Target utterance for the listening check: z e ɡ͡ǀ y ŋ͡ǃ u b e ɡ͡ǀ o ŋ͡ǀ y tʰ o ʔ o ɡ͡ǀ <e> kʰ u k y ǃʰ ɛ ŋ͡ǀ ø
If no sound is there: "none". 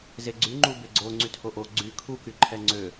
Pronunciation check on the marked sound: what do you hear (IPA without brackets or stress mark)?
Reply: y